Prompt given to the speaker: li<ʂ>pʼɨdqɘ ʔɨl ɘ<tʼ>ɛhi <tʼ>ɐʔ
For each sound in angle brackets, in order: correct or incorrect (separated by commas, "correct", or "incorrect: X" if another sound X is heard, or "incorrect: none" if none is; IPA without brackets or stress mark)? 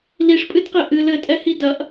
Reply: correct, correct, incorrect: d